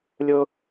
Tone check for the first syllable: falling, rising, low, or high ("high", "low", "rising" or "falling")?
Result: high